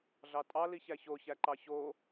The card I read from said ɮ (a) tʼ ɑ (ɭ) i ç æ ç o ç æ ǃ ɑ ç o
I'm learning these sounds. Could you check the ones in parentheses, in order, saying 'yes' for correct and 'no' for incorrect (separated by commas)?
no, no